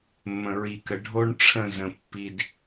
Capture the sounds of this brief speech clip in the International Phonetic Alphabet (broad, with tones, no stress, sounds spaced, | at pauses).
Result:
mː ə̃˨ ɹ i˨ k ə˨ ɖʱ o˦ ɳ ʈ͡ʂʰ ə̃˦˨ z ə̃˨ pː i˦ d